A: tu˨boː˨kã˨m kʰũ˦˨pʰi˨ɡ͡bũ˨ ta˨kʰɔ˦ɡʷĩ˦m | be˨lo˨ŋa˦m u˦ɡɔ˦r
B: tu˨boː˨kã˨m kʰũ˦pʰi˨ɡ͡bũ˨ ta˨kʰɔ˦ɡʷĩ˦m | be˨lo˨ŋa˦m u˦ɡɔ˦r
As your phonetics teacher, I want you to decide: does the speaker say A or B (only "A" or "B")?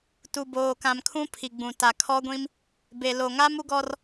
B